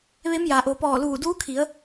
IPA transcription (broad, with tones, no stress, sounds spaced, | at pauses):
ʋ e˧˥ m j a˩ ʔ o˩ p ɔː˧˩ l uː˧˩ d uː˧˥ kʰ i˩˧ ə̯